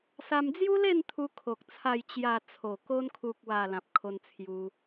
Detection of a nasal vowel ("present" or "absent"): present